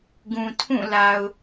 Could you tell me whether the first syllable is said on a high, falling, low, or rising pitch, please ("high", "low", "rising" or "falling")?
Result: low